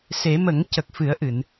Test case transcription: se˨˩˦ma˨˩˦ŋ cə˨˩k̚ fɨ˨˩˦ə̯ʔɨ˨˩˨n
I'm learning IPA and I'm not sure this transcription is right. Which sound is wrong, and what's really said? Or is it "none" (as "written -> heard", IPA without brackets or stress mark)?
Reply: a˨˩˦ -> ə˨˩˦